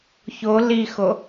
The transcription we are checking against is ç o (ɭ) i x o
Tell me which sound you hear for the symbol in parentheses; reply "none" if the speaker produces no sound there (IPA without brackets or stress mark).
l